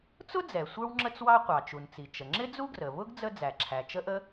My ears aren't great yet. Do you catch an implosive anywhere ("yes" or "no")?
no